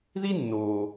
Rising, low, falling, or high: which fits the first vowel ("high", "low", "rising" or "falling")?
high